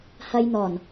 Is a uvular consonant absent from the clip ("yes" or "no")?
yes